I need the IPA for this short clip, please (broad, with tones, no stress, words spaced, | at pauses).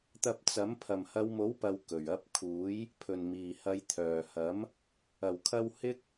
t̪ɐ˧p̚t͡sɐ˨˥m pʰɐ˨˩mhɐ˨˧wmo˨˥wpɐ˨w kɵ˨˩ɥ ɐ˨˥p̚kʰuː˨˥j | pʰɵ˨˩n miː˨˩ hɐ˨˧jt̪ʰœː˨˩hɐ˨˥m | ɐ˨˩wkʰɐ˧w hɪ˥k̚